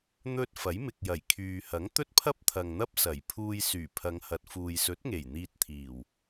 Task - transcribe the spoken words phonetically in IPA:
n̪ ɵ˧ t̚ f ɐ˨˥ j m ɪ˨ k̚ j ɐ˨˩ j kʰ yː˨ h ɐ˨˥ ŋ t̪ ɵ˥ t̚ pʰ ɐ˥ p̚ t̪ʰ ɐ˨ ŋ n̪ ɐ˥ p̚ s ɐ˨˩ j pʰ uː˧ j s yː˨˩ pʰ ɐ˨˧ ŋ h ɐ˨ t̚ f uː˨ j s ɵ˨˥ t̚ ŋ e˨˩ j n̪ iː˧ t̚ t̪ʰ iː˨˩ w

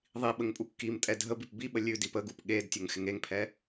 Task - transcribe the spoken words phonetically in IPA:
ðˤ i ɓ ə ŋ pʼ u kː i m tʼ ɛ dʱ ə b i p b i ɓ ə lʲ ʉ d i p ə ɡ u p ɠ e d tʲ ə ŋ x ɪ ŋ e ŋ pʰ ɛ

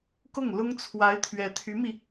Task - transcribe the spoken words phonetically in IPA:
k ʊ˥˩ ŋ l ʊ˥ ŋ t͡sʰ w a˧˥ ɪ̯ t̪ʰ ɥ ɛ˧˥ t̪ʰ y˧˥ m i˧

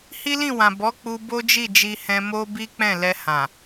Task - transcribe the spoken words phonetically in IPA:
h i˦ l ĩ˦˨ w ã˨ b ɔ˨˦ k͡p u˧ b o˦ d͡ʒ i˦˨ d͡ʒ i˧ h ɛ̃˧ m o˦ b i˦ k͡p ɛ̃˦˨ l ɛ˧ h ã˨

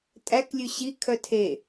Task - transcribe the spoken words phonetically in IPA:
tʼ æ k lʲ ʉ ɕ i kʰ œ tʰ e

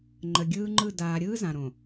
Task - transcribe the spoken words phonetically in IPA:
ŋ͡ǃ ə˨ ɡʲ ɯː˦ ŋ͡ǃ ɯ˦˨ d aː˨ ɾʲ ɯː˦ z ã˨ ɾ õ˨

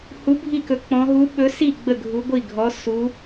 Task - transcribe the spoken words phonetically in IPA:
h u˧˥ bʱ i˥˧ k ɵ˧˥ k͡p ɔ̃˧˥ ɦ u˧˥ ɓ ɵ˧˥ s i˥˧ ɡ͡b ə˥˧ ɡʱ u˧˥ ɡʷ i˥˧ ɡʱ ɔ˧˥ s u˧˥

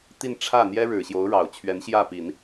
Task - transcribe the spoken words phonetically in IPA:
t̪ i˥˧ n ʈ͡ʂʰ ä˥˩ n̪ j ɛ˥ ɻ ɻ̩˨˩ ɕ j o˧˥ ʊ̯ ɻ ɑ˨˩ ʊ̯ t͡ɕʰ ɥ ɛ˧˥ n ɕ j ä˥˩ p i˨˩˦ n

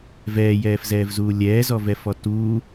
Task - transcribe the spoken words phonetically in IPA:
v ɛː j ɛː f z ɛː v z uː lʲ ɛː z ɔ v ɛ f ɔ t uː

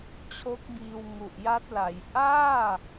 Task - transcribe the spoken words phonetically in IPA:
t͡ɕʰ o˦˥ k̚ b iː˧ w ŋ u˨˩ ʔ j a˦˥ t̚ l a˩˦ j ʔ aː˥˩

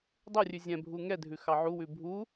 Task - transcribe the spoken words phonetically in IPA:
dˤ o rʲ ʉ zʲ ɛ̃ bʱ u ŋ ɛ dʱ ʉ x ɑ ʕ u w ʉ bʱ u

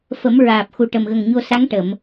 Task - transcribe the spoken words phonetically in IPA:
f ə˨˩˦ m ɹ aː˨˩ p̚ x u˨˩ ʈ ə˨˩ m ɣ ə˨˩ ŋ ɲ o˧ s a˧˥ ŋ ʈ ə˨˩˨ m

